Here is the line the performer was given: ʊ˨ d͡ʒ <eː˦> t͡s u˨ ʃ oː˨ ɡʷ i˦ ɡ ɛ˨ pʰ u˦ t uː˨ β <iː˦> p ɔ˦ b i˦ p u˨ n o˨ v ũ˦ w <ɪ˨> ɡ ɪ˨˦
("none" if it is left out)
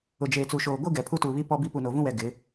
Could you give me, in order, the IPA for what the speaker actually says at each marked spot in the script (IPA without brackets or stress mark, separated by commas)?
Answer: eː˨, i˦, ɛ˨